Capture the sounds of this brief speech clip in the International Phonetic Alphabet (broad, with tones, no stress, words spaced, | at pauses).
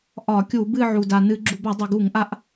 ʔɒ˧˩˧kʲu˧˩˧bɨ˥˧ ʕu˩da˩nɨ˧˩˧ ɡ͡ǁu˩ba˧˩˧dˤo˩ ɡu˧˩˧ŋʔa˨˦ʔ